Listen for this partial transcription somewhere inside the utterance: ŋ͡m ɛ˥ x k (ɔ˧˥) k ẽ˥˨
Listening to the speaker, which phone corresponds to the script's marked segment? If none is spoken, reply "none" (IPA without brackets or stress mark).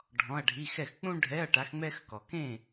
ɔ˨